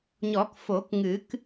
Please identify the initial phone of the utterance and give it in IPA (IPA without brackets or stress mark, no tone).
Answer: ɲ